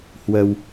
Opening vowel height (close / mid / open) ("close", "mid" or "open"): mid